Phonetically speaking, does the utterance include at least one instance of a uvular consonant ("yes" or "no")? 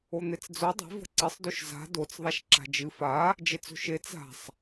no